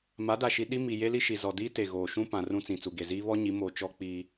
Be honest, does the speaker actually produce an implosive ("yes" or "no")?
yes